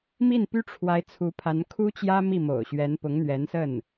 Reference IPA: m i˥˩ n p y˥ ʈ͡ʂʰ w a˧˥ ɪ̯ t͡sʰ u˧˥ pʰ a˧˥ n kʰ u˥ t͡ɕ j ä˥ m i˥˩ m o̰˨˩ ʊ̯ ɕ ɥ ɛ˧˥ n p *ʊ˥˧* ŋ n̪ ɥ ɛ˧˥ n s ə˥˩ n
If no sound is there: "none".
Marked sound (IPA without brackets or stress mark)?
ʊ˧˥